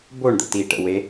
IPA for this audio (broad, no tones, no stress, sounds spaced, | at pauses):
b o ɳ d̪ ə̰ t iː ʈ ə̰ w e